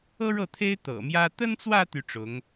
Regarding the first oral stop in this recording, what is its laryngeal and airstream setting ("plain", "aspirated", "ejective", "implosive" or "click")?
aspirated